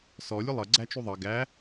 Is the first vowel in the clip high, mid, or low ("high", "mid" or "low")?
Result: mid